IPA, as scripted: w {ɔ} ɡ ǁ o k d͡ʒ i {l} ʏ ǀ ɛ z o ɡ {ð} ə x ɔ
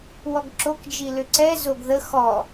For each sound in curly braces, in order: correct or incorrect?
correct, correct, correct

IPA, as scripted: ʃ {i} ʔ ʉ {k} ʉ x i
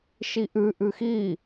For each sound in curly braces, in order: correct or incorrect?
correct, incorrect: ʔ

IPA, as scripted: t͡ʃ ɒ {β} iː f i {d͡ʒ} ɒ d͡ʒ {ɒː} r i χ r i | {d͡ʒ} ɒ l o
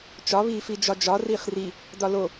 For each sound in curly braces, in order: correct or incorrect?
correct, correct, incorrect: ɒ, incorrect: d

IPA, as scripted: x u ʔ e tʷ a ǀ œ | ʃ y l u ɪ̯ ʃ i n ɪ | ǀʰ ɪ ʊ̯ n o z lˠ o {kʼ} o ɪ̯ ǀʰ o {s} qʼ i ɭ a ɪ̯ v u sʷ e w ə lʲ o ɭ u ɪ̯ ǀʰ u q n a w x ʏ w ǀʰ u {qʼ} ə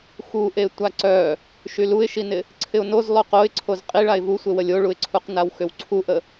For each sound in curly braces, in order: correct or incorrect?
incorrect: q, incorrect: z, incorrect: ʔ

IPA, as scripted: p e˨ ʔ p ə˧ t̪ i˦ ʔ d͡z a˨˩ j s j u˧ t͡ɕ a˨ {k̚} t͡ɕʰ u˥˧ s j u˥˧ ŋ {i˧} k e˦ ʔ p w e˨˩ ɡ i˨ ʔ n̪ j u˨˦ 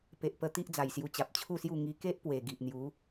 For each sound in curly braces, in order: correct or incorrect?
incorrect: p̚, correct

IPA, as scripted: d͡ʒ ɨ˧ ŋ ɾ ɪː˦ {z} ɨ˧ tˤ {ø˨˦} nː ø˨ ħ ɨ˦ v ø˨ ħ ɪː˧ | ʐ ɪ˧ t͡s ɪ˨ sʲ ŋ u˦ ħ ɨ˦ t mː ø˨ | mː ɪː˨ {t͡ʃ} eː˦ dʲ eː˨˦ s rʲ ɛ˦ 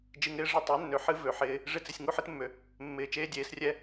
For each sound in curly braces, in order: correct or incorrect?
incorrect: ʐ, correct, correct

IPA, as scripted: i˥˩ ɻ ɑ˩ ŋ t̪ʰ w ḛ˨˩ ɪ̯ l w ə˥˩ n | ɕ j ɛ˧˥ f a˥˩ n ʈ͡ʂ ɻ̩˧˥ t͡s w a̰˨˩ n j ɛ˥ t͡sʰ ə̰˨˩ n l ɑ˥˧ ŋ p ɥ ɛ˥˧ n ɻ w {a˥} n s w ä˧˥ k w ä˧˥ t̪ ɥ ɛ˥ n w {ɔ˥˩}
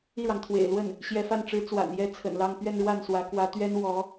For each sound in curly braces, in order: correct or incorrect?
incorrect: a˥˩, incorrect: ɔ˧˥

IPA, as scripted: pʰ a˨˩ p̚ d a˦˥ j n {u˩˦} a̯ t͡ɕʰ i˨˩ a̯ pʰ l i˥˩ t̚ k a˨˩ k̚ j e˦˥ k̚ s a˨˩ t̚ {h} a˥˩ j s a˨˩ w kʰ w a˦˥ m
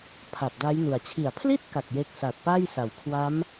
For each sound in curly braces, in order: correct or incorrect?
incorrect: u˨˩, incorrect: p

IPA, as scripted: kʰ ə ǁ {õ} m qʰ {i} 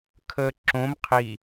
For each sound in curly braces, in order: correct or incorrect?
correct, correct

